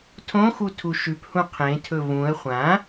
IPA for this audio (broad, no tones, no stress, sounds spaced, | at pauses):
tʰ õ x u tʰ u ʃ ʉ p h ũ qʰ ẽ tʰ ɵ v ũ ə̯ χʷ ã